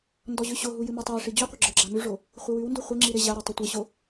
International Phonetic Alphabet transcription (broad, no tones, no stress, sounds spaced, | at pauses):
n d ɔ ʑ ʉ ɕ o ɦ u j ɨ m ʉ tˤ a ɪ̯ ʂ i d͡ʑ u qʷ ɪ ɡ͡ǁ ə˞ ɡ͡ǁ a m ʉ ʐ o | χʷ ɪ w ʉ w n d u χʷ ɪ ŋ͡ǁ i ɾ ɪ ʑ a ɾ o tˤ ɨ tʷ ɨ ɕ o